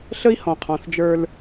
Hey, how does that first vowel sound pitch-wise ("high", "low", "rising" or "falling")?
high